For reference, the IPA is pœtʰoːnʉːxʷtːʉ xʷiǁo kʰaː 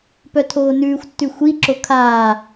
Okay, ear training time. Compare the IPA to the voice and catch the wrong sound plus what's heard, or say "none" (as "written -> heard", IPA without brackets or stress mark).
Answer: none